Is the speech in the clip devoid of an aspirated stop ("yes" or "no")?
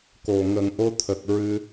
no